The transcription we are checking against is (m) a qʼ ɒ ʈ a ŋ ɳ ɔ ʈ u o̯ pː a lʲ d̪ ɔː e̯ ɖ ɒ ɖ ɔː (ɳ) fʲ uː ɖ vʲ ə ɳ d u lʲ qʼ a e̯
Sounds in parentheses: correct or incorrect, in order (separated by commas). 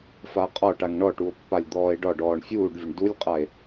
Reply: incorrect, correct